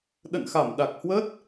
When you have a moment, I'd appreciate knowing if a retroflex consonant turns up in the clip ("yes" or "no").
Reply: no